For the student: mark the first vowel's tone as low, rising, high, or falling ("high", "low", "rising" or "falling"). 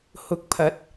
rising